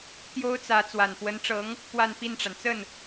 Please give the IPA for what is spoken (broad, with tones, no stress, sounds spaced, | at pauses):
t̪ j o˥ ʊ̯ t͡s ä˧˥ t͡s w a˨˩ n p w ə˧˥ n ʈ͡ʂ ɤ˧˥ ŋ | p w a˥˧ n p i˥˩ n ʈ͡ʂ a˩ n t͡s ə˥˩ n